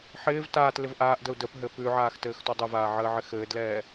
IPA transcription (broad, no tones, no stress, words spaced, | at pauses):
ħɪːv taːt lɪvʔaːʔdəu̯ dəpɦɘ pʉʕaːx tɘːxtɔdˤɘvaː ʕəːʕɪxɘːdlɛː